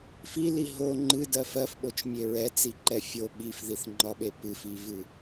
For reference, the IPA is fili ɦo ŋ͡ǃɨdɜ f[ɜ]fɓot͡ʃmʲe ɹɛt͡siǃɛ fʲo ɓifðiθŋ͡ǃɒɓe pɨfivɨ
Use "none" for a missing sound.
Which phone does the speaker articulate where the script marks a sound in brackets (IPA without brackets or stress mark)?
ɜ